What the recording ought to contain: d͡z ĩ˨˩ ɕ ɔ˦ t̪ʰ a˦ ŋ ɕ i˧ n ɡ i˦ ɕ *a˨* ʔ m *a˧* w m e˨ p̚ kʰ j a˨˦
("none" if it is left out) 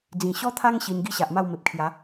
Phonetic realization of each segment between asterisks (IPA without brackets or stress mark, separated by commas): a˨, a˥˧